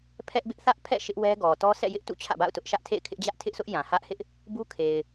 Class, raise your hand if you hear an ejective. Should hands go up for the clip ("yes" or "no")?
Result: no